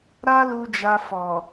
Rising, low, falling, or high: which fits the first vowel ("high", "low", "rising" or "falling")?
high